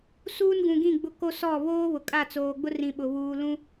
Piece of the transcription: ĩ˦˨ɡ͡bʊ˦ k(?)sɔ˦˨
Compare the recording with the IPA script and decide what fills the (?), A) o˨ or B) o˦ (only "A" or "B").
B